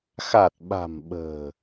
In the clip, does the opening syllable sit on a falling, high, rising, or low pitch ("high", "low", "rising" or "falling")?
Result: low